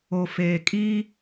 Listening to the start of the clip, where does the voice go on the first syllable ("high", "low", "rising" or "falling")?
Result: low